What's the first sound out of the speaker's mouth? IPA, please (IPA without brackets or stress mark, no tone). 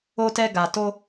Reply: o